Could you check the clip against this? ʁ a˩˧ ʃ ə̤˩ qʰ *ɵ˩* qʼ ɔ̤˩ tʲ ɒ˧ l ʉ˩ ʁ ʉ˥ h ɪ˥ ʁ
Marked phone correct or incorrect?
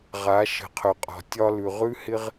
correct